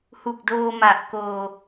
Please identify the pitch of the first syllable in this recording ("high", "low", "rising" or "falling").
low